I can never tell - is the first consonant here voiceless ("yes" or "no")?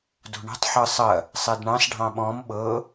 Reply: no